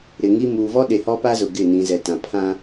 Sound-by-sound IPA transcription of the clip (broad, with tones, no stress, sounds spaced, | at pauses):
ɾ ɪ˨ ŋ i˦ m uː˨ v ɔ˦ ɗ e˨ h ɔ˦ p a˦ z ʊ˨ ɡ ɪ˦˨ n ĩ˨ z ɛ˨ t ã˨ pʰ ã˦